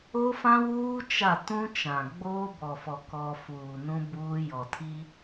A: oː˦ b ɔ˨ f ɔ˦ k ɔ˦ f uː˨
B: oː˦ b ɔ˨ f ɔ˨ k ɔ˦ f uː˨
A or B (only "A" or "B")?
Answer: B